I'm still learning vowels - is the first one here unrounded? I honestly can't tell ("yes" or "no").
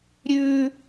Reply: no